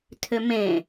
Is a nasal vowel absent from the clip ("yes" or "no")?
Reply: no